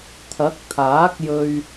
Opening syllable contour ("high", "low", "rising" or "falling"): rising